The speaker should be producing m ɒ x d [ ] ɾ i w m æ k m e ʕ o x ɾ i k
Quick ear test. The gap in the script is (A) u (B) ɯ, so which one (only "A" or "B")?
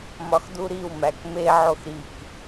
A